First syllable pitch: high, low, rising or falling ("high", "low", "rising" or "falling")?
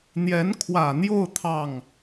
rising